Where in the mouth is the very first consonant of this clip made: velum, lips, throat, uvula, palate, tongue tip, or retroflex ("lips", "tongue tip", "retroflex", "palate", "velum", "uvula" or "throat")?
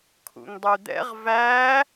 velum